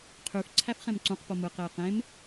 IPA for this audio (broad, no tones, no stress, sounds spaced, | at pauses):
qʰ y f ǀʰ æ f χ ẽ m ǀ ũ q p o m ɯ q e j q ẽ m